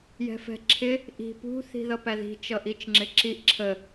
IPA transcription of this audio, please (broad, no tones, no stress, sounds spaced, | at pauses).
j ɛ̤ f ɛ̤ ǁʰ ɪ | ʔ i̤ p ṳ θ i̤ ð ʌ p æ ð i̤ t͡ʃ ʌ ʔ i t͡ʃ ŋ͡ǁ ɪ ǁ i ʔ ǁʰ ə